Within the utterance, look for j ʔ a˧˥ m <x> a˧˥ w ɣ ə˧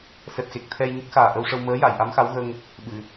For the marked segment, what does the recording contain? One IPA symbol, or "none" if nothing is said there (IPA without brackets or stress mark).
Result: x